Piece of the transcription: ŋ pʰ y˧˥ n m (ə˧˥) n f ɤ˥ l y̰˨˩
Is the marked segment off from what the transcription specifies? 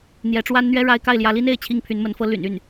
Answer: no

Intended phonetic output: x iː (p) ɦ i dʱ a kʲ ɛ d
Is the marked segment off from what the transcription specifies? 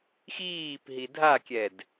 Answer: no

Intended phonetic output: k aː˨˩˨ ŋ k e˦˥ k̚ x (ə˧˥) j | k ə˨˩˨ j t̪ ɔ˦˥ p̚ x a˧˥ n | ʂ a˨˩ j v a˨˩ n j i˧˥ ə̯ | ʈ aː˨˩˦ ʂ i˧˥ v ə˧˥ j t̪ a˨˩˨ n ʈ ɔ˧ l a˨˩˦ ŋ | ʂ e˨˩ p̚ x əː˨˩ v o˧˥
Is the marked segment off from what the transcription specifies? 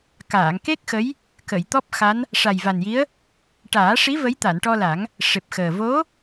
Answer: no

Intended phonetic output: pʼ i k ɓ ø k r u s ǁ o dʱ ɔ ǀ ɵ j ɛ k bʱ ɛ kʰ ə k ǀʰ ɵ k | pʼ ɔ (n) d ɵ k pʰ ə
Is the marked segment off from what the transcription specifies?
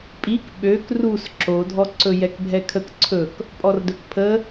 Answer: yes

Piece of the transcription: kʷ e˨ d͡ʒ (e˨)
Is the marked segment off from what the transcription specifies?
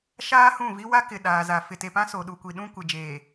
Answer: yes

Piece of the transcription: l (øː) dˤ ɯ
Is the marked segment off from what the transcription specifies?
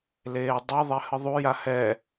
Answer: yes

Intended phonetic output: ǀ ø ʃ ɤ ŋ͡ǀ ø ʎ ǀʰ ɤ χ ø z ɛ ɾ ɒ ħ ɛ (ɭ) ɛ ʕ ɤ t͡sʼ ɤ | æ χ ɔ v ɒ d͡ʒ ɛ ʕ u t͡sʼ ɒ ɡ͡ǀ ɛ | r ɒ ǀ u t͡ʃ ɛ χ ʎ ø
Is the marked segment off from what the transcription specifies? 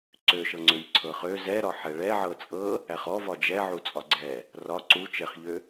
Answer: no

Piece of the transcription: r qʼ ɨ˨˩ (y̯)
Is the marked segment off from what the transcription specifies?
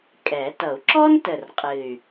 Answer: no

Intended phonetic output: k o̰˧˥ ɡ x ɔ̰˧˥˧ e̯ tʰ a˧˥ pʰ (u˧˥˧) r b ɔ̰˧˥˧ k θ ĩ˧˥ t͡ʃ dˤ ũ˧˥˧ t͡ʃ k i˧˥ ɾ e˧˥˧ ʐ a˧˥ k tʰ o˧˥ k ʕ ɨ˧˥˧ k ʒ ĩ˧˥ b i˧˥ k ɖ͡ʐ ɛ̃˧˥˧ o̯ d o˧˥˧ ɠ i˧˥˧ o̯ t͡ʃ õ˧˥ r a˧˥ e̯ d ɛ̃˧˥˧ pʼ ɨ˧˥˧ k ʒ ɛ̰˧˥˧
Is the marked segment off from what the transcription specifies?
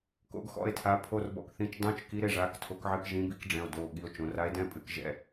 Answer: yes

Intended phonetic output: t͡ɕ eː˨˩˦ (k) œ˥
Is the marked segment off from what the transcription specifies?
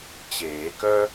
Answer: no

